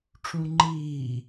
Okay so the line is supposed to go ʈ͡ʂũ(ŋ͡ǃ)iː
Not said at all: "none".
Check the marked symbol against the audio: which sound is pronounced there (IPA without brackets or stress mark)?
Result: ŋ͡ǃ